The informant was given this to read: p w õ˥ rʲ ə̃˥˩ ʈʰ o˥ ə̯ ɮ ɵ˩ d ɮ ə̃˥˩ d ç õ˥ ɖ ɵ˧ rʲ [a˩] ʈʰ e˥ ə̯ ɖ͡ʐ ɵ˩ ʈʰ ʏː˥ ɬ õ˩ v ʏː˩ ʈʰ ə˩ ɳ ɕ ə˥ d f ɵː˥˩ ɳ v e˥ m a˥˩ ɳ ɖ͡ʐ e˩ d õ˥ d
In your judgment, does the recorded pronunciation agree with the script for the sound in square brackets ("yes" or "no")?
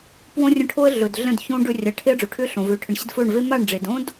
no